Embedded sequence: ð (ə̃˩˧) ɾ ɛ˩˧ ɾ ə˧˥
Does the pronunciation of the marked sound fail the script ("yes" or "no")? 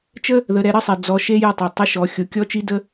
yes